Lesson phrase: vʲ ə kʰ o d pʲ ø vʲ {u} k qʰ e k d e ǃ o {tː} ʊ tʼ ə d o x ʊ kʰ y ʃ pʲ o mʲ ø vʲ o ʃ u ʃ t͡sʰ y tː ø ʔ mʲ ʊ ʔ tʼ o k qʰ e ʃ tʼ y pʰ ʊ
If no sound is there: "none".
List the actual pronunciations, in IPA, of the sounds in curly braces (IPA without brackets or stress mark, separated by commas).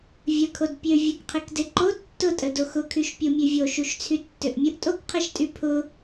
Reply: o, tː